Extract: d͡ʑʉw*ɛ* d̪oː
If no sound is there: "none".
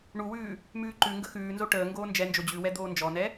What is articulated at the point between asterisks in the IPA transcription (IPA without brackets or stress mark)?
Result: ɛ